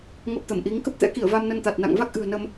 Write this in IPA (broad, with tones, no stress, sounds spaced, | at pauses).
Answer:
ŋ ə˨˩ p̚ t̪ ə˧˩ m ʔ i˨˦ ŋ k ə˦˥ p̚ t̪ ɛ̰˧˥ k i˧˩ ə̯ v a˧ m n ə˧ n t̪ a˨˩ t̚ n a̰˧˨ ŋ v a˦˥ k̚ ʔ ɨ̤˨˩ ə̯ n ə˧ m